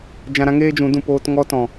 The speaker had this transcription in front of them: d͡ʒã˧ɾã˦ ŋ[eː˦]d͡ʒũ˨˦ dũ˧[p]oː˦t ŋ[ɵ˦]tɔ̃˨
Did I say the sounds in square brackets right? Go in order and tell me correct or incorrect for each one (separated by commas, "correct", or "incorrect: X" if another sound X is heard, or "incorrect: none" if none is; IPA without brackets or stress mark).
correct, correct, incorrect: ɔ˦